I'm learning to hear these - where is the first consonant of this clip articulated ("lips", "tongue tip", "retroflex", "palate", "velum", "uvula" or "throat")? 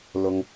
tongue tip